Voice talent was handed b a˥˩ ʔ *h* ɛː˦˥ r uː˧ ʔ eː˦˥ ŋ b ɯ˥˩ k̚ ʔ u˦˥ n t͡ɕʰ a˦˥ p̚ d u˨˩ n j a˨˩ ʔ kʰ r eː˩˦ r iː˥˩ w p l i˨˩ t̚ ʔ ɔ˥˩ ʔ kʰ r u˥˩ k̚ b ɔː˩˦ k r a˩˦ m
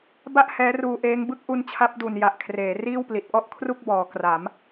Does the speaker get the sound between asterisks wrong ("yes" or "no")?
no